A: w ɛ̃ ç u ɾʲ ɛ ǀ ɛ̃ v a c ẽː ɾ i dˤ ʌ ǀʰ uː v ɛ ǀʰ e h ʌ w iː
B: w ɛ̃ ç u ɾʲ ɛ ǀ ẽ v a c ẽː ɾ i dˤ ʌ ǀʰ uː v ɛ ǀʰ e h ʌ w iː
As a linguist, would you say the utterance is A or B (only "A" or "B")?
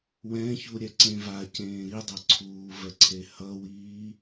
B